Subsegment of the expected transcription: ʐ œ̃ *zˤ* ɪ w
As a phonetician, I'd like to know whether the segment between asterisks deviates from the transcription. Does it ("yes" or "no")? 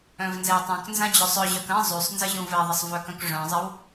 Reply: no